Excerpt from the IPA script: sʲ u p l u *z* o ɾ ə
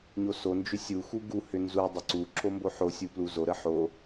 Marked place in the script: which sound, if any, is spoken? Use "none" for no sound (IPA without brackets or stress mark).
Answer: z